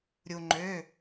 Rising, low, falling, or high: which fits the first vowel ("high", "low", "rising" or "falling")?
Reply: low